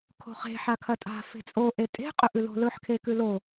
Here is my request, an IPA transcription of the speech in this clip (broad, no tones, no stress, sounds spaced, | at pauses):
kʰ o̤ χ e̤ ħ a kʰ ɐ tʼ a̤ f e̤ t͡sʼ o ʔ e tʼ e̤ qʼ ɵ ʔ ʉ l o̤ l ɵ ħ kʰ e k ʉ l o